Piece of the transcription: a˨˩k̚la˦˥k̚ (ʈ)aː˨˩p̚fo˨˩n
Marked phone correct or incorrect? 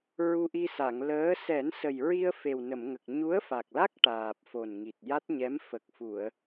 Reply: correct